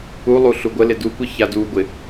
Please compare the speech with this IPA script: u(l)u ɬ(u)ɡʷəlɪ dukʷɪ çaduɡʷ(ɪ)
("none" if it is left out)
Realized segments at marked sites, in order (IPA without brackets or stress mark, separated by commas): lˠ, u, ɪ